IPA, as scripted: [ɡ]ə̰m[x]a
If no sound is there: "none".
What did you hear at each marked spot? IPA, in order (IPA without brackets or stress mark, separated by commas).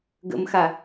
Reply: ɡ, x